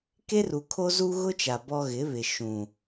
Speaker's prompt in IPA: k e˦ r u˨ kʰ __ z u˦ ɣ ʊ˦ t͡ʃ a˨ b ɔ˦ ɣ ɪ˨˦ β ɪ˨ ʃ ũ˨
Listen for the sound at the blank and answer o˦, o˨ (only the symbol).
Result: o˦